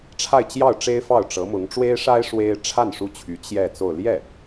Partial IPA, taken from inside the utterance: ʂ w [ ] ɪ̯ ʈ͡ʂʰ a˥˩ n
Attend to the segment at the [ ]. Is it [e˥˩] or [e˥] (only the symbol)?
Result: e˥